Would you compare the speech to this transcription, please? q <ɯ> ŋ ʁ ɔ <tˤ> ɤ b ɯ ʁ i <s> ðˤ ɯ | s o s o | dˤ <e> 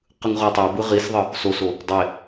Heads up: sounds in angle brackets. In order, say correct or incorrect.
correct, correct, correct, correct

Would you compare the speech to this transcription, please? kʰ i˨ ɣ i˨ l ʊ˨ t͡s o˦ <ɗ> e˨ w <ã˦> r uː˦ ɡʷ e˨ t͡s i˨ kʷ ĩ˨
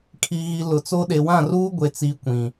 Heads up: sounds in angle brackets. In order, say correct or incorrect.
correct, incorrect: ã˦˨

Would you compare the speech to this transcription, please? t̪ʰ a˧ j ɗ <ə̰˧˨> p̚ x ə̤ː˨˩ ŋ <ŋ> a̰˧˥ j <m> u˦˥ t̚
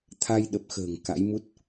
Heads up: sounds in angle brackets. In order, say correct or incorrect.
incorrect: ə˨˩, incorrect: k, correct

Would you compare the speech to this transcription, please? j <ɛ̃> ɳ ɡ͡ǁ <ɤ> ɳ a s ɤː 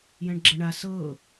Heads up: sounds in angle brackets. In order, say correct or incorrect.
correct, correct

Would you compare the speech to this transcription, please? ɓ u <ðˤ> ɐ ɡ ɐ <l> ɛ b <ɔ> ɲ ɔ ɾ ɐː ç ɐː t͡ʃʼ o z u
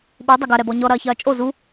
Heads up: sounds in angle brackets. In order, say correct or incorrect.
incorrect: dˤ, incorrect: ɾ, correct

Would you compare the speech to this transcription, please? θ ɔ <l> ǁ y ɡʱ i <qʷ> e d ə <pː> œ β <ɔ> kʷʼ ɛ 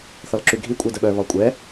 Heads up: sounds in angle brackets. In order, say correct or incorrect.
correct, incorrect: kʷʼ, incorrect: ɓ, correct

